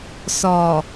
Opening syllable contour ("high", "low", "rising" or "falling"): low